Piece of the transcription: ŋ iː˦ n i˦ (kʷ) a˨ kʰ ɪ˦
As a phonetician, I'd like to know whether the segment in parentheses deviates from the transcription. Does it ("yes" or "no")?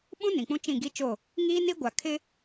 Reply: yes